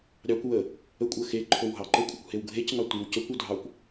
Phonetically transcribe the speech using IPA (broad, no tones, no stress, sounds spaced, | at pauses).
ɾʲ ɑ kʷ w ə | ə kʷʼ ə x e ǃʰ o w ɦ ɑ ǃ ə kʷʼ ə kʷ h e w ɡʱ e c ŋ ɑ tʷ i w c ə kʷ u dʱ ɑ kʷ